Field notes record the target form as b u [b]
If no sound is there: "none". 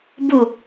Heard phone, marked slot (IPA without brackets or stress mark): none